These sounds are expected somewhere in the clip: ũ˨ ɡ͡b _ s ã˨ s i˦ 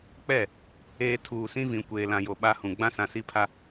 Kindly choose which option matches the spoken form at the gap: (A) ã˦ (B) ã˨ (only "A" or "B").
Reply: A